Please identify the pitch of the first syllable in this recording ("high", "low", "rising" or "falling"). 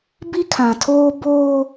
high